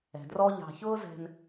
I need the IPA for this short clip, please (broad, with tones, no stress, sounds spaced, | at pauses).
ɛ̤˨ d r ɔ˦ ʎ ɑ̤˨ ç ʊː˦ z ɛ̤˨ n